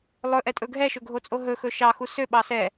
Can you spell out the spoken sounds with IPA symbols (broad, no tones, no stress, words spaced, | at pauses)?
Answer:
lˠɵʔɛtʼɵ ɡʱɛʃɵɡʱot͡sʼo ɦɵxɵ ʃɑxu søɓɑ sɛ